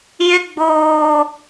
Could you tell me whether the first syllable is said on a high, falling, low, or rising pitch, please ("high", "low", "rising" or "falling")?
high